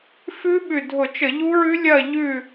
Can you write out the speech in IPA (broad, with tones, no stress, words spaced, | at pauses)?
fʉ˦˥ɓʉ˧˩dʱʊ˧˩˧t͡ʃə˧˩˧ ʎu˦˥ɹʉ˦˥ lʲɐ˥˨ ʎʉ˧˩